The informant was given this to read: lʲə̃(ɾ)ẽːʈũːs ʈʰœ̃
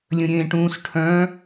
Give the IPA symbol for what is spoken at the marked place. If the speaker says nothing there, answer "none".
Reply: ɾʲ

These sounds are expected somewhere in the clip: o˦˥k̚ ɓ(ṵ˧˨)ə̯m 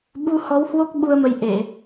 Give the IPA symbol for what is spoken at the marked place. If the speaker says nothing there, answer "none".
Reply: u˧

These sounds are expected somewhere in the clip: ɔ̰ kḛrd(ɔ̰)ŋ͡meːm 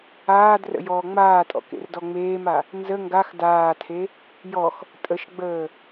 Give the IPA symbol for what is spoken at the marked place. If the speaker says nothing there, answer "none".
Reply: ɔ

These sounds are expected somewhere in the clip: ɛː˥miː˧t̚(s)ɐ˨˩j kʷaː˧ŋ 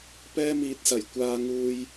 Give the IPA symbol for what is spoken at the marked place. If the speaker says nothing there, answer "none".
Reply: s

